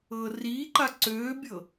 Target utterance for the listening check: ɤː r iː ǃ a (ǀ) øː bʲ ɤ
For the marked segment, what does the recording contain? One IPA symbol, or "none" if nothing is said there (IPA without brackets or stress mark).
ǀ